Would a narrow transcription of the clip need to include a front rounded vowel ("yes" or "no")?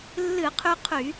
yes